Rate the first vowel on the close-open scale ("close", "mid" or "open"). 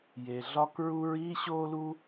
mid